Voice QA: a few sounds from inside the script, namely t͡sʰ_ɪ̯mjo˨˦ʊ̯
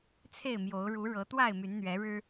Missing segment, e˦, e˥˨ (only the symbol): e˥˨